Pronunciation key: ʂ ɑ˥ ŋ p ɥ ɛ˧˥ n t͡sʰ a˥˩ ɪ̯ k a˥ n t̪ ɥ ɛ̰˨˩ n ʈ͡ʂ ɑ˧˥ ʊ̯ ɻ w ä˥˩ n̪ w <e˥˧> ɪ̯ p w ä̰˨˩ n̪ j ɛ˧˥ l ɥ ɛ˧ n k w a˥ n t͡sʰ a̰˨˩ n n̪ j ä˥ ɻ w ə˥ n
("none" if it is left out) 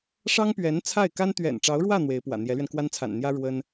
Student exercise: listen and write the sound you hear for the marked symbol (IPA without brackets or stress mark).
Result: e˧˥